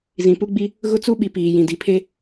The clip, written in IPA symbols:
zĩ˨pu˦ɡ͡bi˦ | ɣʊ˦t͡su˦ɓi˨ piː˨jĩ˨ di˨pʰe˦

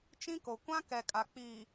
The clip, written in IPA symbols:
t͡ʃĩ˦ko˨ kʷã˦kɛ˨ kʼa˨k͡piː˨

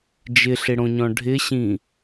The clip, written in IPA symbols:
d͡ʒɪɬɪɽõɲɔ̃ ɖʱɪɕĩ

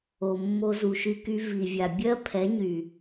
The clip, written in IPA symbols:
o˨mːo˧ zu˨ʃy˧ky˧ vi˨vʲa˨ bʲɜ˦ pʰɛ˨˦ɲy˨

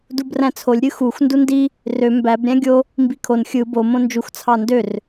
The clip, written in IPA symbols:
dubræ̃t͡sʰolʲ ɾʲɯxux ndundi | rø mbæb ɾʲæ̃ɡʲo | mbikʰon xʲɯ bo mõnd͡ʒux t͡sʰɑndør

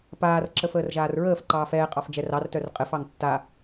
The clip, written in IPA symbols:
paːr ǁəfəːrʒaːrɹəːf ǃɑːfɛːqʼɑf d͡ʒɛrɑrtœr qʼɘfɑŋ tːa

